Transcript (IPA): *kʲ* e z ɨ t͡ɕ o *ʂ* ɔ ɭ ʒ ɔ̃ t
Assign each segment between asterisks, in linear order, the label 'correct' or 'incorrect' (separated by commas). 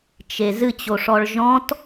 incorrect, correct